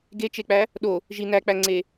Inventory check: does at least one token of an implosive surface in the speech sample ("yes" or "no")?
yes